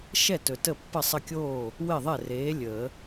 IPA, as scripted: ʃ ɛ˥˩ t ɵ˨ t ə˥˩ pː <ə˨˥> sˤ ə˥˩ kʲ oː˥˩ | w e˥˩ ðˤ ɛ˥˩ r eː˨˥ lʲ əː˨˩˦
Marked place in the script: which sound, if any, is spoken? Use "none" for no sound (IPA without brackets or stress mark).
ə˥˩